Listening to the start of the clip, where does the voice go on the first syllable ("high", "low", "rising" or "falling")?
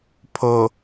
low